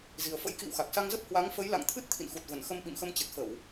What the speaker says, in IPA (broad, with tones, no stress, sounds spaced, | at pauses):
z i˨˩ ə̯ f ə̰˧˥ j k ḭ˧˨ w x a˨˩ k̚ s a˧ ŋ z ə˦˥ p̚ h w a˨˦ ŋ f ə˨˦ j l a̰˧˨ ŋ t̪ʰ ɨ˦˥ t̚ t̪ʰ ḭ˧˨ n x u˨˩ t̚ v ə˧˩ n x ə˧ m ɓ ḭ˧˨ m x ə˧ m t͡ɕ ɨ˨˩ t̚ f ə˧˩˨ w